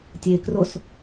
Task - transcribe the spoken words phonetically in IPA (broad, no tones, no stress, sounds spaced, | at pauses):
tʲ e k r o s